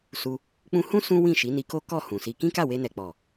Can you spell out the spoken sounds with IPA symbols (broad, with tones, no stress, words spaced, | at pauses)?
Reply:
su˧ | k͡pũ˧hũ˦ sũ˦ wĩ˦˨ʃi˨˦ni˧ko˦ kɔ˦˨hũ˨si˧ kĩ˦ka˦˨we˧nɛ˨ k͡pɔ˨